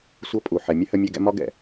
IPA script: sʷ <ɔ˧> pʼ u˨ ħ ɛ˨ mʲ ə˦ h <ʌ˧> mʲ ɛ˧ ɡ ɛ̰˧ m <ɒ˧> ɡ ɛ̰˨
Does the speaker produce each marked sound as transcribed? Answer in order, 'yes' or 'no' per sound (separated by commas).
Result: no, no, yes